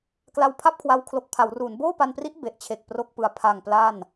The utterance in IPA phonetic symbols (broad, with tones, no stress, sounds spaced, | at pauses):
k l a˧ w pʰ a˥˩ p̚ kʰ w a˧ w kʰ l o˨˩ k̚ pʰ a˩˦ w r u˩˦ n b oː˥˩ p a˧ n p r i˦˥ ʔ b e˨˩ ʔ t͡ɕʰ e˨˩ k̚ p r o˥˩ k̚ p ɯ˧ a̯ pʰ a˨˩ ŋ p l a˥˩ n